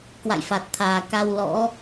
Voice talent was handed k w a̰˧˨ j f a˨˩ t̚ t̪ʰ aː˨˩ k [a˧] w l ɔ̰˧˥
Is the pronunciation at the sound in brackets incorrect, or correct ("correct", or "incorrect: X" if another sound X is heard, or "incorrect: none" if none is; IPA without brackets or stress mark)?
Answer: correct